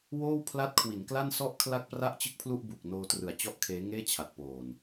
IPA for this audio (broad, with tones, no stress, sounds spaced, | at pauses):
w oː˥˩ w pʰ l a˦˥ t̚ kʰ w i˩˦ n k l a˥˩ n s ɔ˥˩ ʔ kʰ l a˥˩ k̚ p r a˥˩ ʔ t͡ɕ ɯ˥˩ k̚ pʰ l u˥˩ ʔ b u˨˩ k̚ n oː˧ t r ɯ˨˩ a̯ t͡ɕ ɔ˥˩ ʔ kʰ eː˦˥ ŋ eː˥˩ t͡ɕʰ a˨˩ t̚ p oː˨˩ n